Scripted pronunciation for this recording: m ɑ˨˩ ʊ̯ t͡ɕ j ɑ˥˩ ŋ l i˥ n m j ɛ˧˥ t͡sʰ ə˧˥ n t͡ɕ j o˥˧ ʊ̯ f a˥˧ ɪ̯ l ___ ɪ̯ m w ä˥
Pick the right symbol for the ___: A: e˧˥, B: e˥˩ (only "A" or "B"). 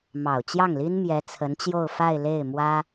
B